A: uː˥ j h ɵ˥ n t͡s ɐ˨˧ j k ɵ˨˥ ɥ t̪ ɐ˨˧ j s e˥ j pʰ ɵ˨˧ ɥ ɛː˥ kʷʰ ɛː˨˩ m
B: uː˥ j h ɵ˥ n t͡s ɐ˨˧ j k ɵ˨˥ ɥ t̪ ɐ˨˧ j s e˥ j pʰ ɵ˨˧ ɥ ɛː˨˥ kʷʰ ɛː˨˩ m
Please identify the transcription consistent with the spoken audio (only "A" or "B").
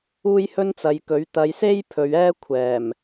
A